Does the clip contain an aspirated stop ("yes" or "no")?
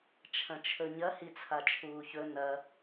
yes